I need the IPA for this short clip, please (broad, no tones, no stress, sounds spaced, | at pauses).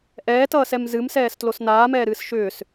ʔ ɛː t ʌː s ɛ m z ɨ m s ɛː s t l o s n aː m ɛː ɾ ɨː s ʃ ʏː s